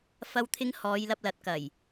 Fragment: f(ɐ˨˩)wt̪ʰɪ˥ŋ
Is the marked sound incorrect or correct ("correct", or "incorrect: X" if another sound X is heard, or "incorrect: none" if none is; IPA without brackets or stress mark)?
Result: incorrect: ɐ˥